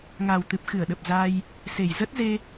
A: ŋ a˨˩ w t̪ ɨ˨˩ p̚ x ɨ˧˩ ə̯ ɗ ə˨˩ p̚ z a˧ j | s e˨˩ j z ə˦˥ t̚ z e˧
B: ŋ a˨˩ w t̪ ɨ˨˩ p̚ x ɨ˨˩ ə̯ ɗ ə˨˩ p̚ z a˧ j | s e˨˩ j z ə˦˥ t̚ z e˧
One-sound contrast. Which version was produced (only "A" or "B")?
A